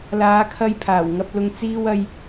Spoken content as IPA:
laː˨˧kʰɐ˧j pʰaː˨˩wŋɐ˧p̚lʊ˧ŋ t͡siː˥wɐ˥j

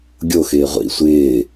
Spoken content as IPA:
ɡʲo xɪːʁʷḭ sʷɪː

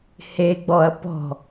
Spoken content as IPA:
heɡ͡bɔɐ̯ pɔ̤

